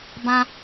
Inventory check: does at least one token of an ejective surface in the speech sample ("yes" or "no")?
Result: no